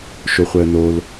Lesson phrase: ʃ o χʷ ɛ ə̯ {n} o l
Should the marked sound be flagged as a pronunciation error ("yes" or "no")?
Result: no